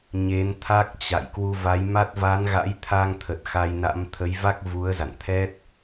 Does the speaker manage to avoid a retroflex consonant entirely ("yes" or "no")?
yes